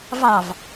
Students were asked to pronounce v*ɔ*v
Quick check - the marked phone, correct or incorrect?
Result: incorrect